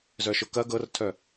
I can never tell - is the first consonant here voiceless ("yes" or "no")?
no